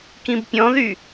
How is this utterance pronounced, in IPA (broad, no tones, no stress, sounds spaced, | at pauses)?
k ĩ b pʲ ɔ̃ ð y